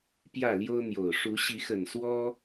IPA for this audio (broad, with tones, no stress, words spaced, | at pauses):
pjä˥˨ljo˦ʊ̯n̪jo˨˩ʊ̯ ʂu˨˦ɕi˨˦xə˨˩n swɔ˦